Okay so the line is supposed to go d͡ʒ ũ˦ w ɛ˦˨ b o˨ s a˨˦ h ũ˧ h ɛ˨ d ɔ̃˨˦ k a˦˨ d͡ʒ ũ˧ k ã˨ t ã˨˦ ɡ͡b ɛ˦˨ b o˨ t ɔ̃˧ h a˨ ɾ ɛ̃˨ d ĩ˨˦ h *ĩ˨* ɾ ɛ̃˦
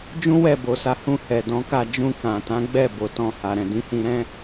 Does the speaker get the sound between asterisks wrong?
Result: yes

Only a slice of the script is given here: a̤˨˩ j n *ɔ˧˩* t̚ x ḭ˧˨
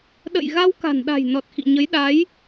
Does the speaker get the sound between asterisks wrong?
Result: yes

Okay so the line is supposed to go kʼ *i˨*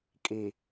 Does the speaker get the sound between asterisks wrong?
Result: no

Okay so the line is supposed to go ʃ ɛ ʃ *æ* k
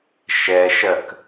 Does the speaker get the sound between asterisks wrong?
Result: yes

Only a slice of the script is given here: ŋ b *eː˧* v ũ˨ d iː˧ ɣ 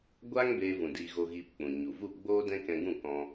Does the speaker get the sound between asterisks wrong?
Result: no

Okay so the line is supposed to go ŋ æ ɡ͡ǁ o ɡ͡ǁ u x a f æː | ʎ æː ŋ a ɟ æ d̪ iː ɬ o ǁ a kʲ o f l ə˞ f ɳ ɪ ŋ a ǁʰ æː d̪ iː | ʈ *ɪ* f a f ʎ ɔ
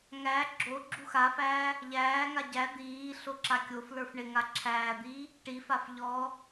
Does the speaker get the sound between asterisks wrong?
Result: yes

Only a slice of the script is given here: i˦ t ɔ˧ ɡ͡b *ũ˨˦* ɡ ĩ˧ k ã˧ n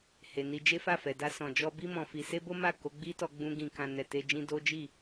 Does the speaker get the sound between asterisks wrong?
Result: yes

